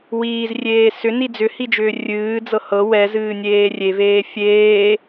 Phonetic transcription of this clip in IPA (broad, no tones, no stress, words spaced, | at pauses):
wiːzrʲeː sʏni d͡zʏhid͡ʒʏː rʲɨːd͡zɤ hɤ wɛzɨːnʲeː rʲeveː fʲeː